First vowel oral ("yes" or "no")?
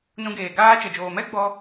no